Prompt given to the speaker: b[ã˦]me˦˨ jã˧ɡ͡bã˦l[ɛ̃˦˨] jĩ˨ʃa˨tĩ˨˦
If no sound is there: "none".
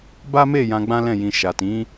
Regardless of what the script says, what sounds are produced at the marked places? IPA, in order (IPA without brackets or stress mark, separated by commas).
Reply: a˦, ɛ̃˦˨